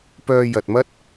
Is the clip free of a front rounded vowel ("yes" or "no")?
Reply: no